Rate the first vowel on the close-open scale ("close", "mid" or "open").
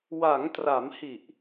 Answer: open